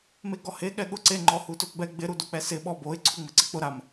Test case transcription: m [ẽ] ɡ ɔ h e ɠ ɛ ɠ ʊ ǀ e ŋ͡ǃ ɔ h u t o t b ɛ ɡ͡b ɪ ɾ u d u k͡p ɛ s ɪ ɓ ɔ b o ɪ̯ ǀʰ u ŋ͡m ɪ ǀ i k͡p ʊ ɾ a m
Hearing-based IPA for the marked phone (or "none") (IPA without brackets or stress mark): e